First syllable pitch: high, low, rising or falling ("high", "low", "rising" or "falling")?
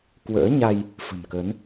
rising